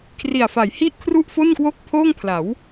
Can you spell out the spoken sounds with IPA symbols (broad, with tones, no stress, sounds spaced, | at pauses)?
kʰ r i˨˩ a̯ f a˩˦ j h i˥˩ ʔ kʰ r u˥˩ ʔ f o˥˩ n k w o˥˩ k̚ pʰ oː˥˩ ŋ pʰ l a˩˦ w